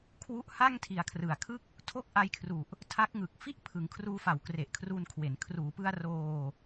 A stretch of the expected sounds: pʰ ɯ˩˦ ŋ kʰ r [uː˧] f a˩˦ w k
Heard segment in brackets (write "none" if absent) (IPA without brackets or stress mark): uː˧